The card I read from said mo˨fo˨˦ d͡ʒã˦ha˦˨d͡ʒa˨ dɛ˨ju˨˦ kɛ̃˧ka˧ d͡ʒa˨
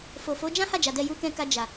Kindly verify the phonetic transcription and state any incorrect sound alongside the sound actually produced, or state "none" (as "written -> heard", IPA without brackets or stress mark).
m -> f